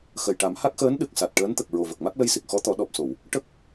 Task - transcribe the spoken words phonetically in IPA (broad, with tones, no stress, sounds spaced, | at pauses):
x ə˨˩ j ʈ a˨˩˦ m h a˦˥ k̚ x əː˧˥ n ɗ ɨ˨˩ k̚ s a˨˩ t̚ ʈ əː˧˥ n t̪ ə˨˩ k̚ ɹ o˨˩ v ə˨˩ k̚ m a˦˥ k̚ l ə˧ j s i˨˩ k̚ x ɔ˧˥ t̪ ɔ˨˩˦ ɗ ɔ˨˩ p̚ s o˨˩˨ w | ʈ ə˦˥ k̚